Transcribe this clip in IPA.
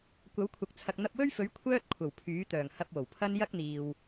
kʷ ɐ˨˥ w kʷʰ ɐ˨ k̚ t͡sʰ ɐ˨ k̚ n̪ ɐ˧ p̚ w ɵ˥ ɥ f ɵ˨˥ ɥ kʷʰ œː˥ t̚ kʷʰ ɐ˨˩ w pʰ yː˨˥ t̪ œː˨˩ ŋ h ɐ˧ p̚ w o˨˩ w pʰ ɐ˥ n j ɐ˥ k̚ n̪ iː˨ w

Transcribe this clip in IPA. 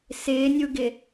s ɪː nʲ u ɡ ɪ

